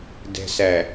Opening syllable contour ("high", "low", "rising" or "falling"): low